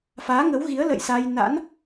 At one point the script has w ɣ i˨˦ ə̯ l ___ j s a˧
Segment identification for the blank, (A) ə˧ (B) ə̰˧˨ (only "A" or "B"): B